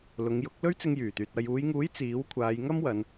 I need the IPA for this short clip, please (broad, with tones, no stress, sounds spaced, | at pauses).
l ʊ˨˧ ŋ j ʊ˨˥ k̚ l ɵ˥ ɥ t͡s ɪ˧ ŋ j yː˨˩ t̪ yː˨ t̚ ɐ˨ j uː˨˧ j ŋ uː˨˥ j t͡s iː˨˥ w kʷʰ aː˨˧ j ŋ ɐ˥ m w ɐ˨˧ n